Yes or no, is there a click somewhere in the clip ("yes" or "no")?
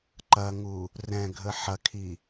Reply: yes